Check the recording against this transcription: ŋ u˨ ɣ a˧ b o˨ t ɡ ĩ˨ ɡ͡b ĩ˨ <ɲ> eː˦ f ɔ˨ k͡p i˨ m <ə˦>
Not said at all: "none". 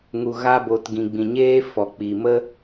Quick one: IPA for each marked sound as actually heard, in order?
ɲ, ə˦

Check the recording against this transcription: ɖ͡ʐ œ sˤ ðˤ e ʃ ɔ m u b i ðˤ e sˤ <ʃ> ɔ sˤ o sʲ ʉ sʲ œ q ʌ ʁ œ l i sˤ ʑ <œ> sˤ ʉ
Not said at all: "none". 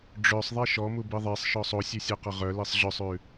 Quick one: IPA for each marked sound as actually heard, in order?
ʃ, œ

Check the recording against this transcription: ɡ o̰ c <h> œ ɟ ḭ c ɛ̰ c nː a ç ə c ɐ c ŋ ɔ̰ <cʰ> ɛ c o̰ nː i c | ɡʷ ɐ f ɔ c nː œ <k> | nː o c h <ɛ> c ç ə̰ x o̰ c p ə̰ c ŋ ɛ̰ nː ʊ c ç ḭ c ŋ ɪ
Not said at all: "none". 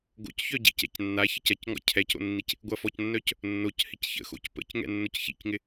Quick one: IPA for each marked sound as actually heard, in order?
ç, cʰ, c, ɪ

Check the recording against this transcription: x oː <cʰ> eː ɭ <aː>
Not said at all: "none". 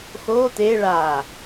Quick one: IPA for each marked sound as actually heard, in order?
t̪, aː

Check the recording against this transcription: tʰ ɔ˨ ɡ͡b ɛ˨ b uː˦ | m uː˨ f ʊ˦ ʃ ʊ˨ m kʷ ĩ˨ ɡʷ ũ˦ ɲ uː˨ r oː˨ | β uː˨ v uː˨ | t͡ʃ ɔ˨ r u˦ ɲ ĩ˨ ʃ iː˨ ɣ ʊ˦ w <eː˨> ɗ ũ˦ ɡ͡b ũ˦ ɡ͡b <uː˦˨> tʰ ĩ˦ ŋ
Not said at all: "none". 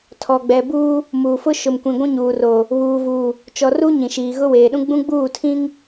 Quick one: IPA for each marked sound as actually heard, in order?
eː˨, uː˦˨

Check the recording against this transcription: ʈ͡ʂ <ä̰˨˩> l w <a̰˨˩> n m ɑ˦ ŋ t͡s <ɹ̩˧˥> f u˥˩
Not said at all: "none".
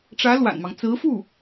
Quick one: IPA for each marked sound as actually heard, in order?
ä˧˥, a̰˨˩, ɹ̩˧˥

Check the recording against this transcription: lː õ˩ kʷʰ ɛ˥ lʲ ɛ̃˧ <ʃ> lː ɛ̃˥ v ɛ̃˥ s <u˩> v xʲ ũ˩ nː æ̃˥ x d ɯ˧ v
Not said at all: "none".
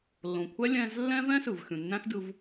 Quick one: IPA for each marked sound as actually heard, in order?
z, ɯ˩

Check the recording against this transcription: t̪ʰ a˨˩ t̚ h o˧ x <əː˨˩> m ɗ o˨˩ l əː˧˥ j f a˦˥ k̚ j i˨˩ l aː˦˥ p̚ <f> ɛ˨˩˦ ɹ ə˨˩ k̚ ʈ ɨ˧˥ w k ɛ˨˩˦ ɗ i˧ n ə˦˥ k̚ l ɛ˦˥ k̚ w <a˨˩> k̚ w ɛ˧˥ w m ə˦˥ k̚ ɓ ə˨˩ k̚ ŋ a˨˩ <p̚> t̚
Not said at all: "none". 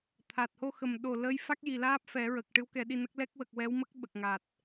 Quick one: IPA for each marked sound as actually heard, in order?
ə˨˩, f, ə˨˩, none

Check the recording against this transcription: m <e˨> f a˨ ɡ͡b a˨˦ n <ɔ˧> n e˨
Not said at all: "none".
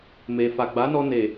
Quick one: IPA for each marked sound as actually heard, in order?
e˨, ɔ˧

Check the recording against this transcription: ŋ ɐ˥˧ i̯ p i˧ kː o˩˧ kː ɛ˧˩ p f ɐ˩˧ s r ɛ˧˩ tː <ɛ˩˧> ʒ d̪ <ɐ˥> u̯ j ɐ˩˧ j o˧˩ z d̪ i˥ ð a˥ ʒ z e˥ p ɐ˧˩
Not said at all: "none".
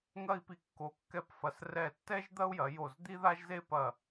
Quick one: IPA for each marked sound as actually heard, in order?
ɛ˥, ɐ˥

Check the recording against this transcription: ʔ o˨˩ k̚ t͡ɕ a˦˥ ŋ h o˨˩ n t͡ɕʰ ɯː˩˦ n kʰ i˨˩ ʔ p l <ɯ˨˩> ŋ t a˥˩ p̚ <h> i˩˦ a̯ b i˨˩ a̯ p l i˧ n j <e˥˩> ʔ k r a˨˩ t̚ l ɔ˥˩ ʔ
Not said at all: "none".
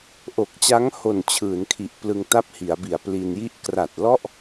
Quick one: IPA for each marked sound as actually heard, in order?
ɯ˧, h, i˥˩

